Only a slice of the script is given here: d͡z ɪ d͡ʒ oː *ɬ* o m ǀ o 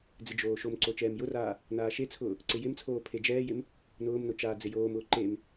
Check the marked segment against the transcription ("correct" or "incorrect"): incorrect